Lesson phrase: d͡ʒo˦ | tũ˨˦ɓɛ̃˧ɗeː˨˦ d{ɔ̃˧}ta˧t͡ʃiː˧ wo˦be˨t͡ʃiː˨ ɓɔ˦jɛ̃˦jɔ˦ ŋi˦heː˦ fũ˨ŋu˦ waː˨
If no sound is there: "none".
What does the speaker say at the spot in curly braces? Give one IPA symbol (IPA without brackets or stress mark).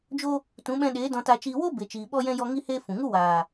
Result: ɔ̃˧